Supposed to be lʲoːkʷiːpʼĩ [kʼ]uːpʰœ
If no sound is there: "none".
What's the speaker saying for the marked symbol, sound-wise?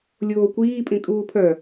kʼ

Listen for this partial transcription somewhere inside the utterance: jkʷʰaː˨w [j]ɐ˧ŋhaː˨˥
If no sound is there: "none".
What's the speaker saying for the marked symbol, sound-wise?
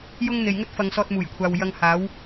j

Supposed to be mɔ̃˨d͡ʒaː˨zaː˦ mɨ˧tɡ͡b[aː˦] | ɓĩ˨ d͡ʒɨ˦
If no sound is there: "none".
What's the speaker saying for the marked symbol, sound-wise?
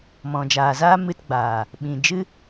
aː˨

